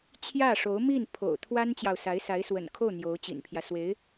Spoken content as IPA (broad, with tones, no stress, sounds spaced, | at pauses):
t͡ɕʰ j ä˥˩ ʂ o˧˥ ʊ̯ m i˥˩ n pʰ o̰˨˩ ʊ̯ t̪ʰ w a˥ n t͡ɕ j ɑ˨ ʊ̯ s a˧˥ ɪ̯ s a˧˥ ɪ̯ s w ə̰˨˩ n kʰ o˥˩ ʊ̯ n̪ j o˧˥ ʊ̯ t͡ɕ ḭ˨˩ n pʰ j ä˦ s w e˧˥ ɪ̯